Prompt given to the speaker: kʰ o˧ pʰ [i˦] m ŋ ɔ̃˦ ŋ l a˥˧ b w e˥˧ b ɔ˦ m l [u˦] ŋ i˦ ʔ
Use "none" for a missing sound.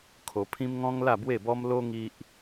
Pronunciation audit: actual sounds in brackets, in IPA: ĩ˦, o˦

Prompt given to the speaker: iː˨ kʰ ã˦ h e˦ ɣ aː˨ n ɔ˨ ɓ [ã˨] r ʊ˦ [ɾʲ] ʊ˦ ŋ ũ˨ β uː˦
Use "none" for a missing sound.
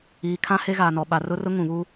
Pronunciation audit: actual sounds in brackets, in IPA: a˨, r

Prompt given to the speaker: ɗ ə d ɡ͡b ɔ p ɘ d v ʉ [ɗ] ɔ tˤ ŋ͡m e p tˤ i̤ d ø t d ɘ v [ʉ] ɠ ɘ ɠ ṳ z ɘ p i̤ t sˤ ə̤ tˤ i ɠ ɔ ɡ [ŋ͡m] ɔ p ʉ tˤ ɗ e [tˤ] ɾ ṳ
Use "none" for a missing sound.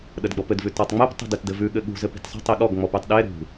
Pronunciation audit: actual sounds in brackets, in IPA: t, ʉ, ŋ͡m, none

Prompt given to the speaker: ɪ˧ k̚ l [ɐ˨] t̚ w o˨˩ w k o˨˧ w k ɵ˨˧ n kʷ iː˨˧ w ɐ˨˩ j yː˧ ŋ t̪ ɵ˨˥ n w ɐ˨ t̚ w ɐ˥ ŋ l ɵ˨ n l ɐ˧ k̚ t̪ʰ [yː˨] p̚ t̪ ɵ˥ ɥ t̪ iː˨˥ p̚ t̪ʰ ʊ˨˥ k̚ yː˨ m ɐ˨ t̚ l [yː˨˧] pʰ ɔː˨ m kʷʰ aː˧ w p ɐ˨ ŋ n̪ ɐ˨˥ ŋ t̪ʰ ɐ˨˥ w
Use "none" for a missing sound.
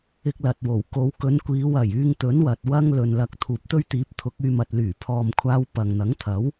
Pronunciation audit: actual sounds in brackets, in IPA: ɐ˨, uː˨, yː˨˩

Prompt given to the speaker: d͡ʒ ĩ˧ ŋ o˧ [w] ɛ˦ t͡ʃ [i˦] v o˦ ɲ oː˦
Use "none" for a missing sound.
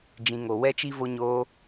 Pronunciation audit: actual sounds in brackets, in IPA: w, i˦

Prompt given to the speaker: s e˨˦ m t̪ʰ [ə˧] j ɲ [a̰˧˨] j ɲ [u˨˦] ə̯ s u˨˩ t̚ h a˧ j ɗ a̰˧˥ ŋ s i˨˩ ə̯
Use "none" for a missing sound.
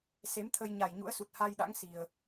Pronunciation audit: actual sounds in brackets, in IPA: ə˧, a˨˩, ṵ˧˥

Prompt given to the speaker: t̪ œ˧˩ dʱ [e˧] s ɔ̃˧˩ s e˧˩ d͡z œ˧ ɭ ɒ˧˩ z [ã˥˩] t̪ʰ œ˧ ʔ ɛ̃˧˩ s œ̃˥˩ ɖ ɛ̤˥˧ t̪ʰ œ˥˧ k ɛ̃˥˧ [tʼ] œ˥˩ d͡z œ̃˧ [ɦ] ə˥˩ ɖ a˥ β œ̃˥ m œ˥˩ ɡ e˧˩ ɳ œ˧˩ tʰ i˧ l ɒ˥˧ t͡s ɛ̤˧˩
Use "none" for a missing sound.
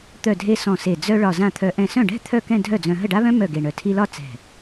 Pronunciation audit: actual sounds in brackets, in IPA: e˧, ã˥˩, dʱ, ɦ

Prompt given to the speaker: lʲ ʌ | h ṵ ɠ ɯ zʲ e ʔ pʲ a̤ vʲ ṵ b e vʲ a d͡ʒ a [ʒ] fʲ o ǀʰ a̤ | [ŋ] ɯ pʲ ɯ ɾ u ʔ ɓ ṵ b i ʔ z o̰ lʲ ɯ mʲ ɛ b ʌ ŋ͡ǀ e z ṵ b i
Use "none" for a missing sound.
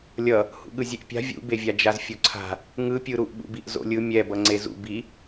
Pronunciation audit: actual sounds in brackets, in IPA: z, ŋ

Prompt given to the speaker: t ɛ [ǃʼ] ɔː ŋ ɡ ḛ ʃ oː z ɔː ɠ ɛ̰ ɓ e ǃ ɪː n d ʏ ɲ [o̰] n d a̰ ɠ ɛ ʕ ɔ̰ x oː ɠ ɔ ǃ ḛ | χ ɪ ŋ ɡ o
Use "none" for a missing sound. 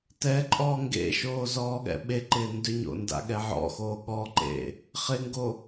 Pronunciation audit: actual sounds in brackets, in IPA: ǃʼ, o̰

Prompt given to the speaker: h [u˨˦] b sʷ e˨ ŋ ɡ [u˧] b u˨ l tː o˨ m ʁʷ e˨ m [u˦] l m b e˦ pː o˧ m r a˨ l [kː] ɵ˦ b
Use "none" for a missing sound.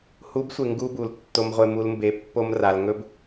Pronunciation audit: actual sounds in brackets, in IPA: u˨˦, u˦, u˦, ŋ

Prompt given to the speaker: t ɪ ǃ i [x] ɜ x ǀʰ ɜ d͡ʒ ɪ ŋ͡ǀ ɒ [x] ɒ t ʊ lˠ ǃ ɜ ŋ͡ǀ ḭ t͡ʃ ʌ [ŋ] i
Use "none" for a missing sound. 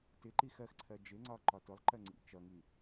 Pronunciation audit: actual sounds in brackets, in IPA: x, ǃ, ŋ

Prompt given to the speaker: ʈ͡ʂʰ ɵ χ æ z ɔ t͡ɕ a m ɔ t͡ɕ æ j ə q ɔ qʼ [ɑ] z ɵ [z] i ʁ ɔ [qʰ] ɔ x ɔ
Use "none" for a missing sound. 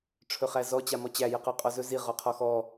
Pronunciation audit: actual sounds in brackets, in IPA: ɔ, z, qʰ

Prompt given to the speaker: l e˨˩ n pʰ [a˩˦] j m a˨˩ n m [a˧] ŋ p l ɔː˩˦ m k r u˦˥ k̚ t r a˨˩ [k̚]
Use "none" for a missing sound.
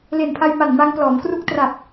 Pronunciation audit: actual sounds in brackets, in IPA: a˧, a˧, p̚

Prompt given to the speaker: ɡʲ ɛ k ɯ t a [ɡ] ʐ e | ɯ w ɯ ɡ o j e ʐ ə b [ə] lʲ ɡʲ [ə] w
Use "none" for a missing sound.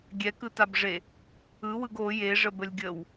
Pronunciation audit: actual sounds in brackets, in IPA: b, ə, ə

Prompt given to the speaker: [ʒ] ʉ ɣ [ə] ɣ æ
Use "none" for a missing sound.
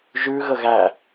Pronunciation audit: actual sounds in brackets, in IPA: ʒ, ə

